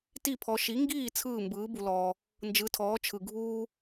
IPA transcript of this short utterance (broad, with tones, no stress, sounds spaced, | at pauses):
t i˥˩ pʰ ɔ˩˥ ʃ i˩˥ ŋ ɡ iː˥˩ t͡sʰ ɯː˥˩ m b ɯː˩˥ b u˩ l ɔː˩ | n d͡ʒ ɯ˩˥ tʰ ɔː˩˥ t͡ʃʰ ɯ˩ ɡʱ uː˥